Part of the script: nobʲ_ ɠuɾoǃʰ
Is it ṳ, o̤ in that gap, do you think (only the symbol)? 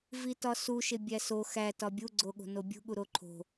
ṳ